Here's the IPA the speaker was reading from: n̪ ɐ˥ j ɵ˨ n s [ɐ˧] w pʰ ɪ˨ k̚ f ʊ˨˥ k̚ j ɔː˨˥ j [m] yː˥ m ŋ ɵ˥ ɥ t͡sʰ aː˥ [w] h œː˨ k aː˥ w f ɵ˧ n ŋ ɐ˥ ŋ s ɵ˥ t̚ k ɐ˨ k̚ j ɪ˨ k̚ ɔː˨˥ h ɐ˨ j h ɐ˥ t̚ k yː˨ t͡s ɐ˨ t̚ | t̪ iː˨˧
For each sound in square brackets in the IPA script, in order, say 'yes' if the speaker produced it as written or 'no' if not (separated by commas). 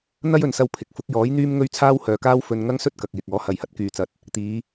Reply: yes, no, yes